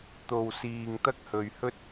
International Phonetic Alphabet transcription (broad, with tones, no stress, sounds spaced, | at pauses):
t̪ o˨ w s iː˨ ŋ t̪ ɐ˥ k̚ h ɵ˨ ɥ h ɵ˥ t̚